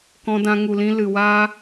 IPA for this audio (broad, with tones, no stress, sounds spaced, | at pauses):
k ɔ̃˧ d ã˧ ŋ u˨ l ĩ˧ l ɨ˨ w aː˦